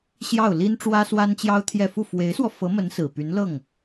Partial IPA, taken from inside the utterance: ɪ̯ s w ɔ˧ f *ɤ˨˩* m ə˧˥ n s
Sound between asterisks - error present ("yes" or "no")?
yes